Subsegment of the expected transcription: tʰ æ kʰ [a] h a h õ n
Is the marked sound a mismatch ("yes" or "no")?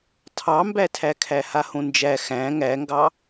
yes